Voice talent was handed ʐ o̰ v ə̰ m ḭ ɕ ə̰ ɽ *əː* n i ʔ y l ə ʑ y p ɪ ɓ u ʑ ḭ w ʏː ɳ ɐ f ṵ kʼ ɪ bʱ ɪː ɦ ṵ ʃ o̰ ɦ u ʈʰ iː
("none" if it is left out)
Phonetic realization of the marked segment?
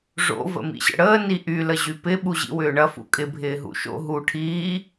əː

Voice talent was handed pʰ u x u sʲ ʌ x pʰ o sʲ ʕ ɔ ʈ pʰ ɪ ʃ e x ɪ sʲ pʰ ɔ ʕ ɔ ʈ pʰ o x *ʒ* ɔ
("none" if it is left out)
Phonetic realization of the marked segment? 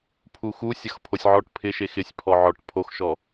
ʃ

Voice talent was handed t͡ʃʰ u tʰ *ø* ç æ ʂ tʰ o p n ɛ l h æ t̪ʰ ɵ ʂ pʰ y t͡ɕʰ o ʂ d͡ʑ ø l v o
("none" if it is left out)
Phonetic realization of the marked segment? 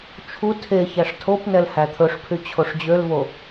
e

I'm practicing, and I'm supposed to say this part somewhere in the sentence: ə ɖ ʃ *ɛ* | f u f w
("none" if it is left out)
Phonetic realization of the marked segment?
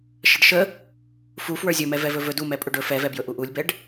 ə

